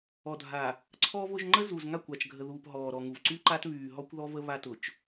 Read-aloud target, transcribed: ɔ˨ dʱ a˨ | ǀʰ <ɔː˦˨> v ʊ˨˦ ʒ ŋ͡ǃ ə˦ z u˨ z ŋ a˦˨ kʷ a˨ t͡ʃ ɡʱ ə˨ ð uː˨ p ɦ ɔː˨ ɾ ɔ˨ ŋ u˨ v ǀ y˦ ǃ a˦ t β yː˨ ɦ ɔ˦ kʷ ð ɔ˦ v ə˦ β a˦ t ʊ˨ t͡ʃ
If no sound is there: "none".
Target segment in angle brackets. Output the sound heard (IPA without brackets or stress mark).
ɔː˦